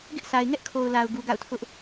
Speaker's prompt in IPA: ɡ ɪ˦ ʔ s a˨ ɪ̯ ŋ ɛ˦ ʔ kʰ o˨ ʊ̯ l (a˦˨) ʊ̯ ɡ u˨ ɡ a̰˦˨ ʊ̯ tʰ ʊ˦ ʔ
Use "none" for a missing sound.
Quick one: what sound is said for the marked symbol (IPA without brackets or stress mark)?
a˨